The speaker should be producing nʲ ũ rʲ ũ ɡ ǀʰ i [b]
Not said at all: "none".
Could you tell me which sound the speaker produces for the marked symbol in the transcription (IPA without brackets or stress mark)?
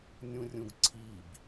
b